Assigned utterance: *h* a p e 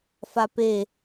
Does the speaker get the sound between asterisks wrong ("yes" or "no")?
yes